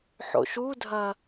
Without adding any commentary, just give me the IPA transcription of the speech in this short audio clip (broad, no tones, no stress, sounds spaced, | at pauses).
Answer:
ħ o̰ ʃ u dʱ ɐ